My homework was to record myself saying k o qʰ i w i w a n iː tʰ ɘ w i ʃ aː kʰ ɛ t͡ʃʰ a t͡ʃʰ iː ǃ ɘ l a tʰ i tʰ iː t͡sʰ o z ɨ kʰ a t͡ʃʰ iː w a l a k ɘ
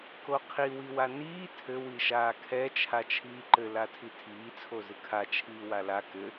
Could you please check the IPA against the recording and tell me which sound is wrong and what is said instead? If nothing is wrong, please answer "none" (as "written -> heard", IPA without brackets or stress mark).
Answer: none